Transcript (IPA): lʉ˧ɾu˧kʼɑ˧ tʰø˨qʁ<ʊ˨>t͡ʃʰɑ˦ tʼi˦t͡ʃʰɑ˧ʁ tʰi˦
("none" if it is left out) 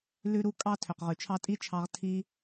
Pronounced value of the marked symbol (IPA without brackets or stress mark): ʉ˨